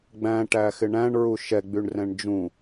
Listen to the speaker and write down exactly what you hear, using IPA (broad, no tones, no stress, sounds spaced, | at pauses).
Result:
ɡ͡b æ̃ ʈ æ x ɪ ɳ æ̃ ɳ ɹ u ʃ ɛ ɡ͡b y ɳ r ɛ̃ ɳ d͡ʒ ũ